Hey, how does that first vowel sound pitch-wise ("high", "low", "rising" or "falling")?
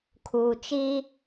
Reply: low